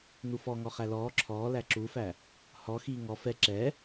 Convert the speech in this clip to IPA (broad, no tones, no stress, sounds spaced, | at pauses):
n u f ɔ ŋ ɔ χ æ l ɔː ǁʰ ɔː l æ ǁ u f æ | h ɔ x iː ŋ ɔ f ɛ ǁ ɛ